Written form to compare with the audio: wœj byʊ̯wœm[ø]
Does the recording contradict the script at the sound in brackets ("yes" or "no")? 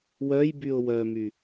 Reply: yes